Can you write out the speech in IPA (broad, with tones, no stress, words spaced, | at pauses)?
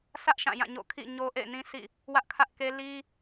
sʰä˦ʔ ʃã˦˨jã˦˨ɲo̰˦˨ kʰḭ˦˨ ɲo˦ʔḛ˦˨ɪ̯nĩ˦sḭ˦˨ | wä˦ʔkʰä˦ʔke˦ li˦